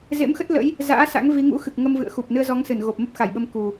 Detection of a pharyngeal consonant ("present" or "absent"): absent